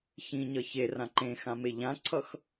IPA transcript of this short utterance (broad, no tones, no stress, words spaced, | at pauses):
çĩɲʌ çerã ǃẽxã meʎãǀʰʌx